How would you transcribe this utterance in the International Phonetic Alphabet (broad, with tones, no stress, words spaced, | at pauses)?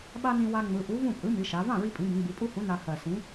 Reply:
ɓa˧ nĩ˧wa˧ ŋ͡mɯ˩˧ʔu˨˥vũ˥˩pʼɯ˨˥ mi˩˧ʃa˩˧ vã˥˩ɹi˧pʼĩ˩˧ bĩ˩˧ɡ͡bi˩˧pʼu˥˧hũ˨˥ na˧ hɜ˨˩sĩ˨˥